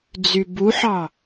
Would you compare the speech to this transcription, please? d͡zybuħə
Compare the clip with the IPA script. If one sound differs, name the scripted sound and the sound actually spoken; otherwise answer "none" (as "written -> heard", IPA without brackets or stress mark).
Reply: ə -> ɑ